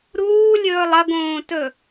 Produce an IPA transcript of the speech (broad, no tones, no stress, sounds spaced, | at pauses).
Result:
ɾ uː lʲ ɵː lˠ ɐ ɡ õː t ɵ